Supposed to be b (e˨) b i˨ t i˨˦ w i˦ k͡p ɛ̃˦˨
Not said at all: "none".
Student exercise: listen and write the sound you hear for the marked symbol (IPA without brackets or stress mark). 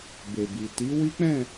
e˨